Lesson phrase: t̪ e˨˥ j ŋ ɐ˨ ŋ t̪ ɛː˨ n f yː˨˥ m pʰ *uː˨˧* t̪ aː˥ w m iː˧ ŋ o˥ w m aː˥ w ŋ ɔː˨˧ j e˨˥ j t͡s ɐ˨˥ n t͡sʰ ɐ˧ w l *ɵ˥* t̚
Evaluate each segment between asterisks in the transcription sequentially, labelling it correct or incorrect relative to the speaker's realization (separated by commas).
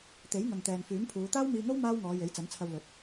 correct, incorrect